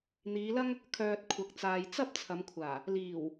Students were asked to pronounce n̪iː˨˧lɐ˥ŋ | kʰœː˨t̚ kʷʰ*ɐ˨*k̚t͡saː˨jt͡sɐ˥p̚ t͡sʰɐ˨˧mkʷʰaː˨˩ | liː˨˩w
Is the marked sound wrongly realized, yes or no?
no